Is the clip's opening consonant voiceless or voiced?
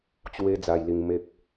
voiceless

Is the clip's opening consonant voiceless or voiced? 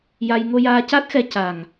voiced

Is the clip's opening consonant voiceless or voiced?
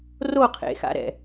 voiced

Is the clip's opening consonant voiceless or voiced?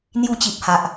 voiced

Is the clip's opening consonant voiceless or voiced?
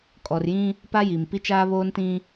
voiceless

